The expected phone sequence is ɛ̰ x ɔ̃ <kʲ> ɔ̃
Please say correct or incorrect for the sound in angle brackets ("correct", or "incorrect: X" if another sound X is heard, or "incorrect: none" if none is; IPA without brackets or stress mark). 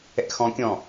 correct